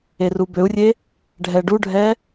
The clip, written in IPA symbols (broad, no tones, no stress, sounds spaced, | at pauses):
e r u b ø u̯ rʲ e | ɖʱ ɛ ɖ u ɖʱ ɛ